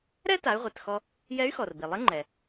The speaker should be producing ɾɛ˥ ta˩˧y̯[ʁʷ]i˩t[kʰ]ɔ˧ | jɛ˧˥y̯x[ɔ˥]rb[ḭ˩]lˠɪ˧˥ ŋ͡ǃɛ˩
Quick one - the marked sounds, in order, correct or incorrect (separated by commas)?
correct, incorrect, incorrect, incorrect